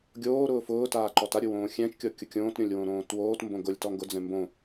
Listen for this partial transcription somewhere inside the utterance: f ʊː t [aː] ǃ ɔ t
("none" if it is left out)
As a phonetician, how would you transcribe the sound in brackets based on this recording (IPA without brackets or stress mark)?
aː